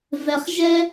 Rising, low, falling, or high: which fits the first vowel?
low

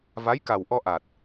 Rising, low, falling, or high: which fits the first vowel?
rising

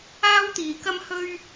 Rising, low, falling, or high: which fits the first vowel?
high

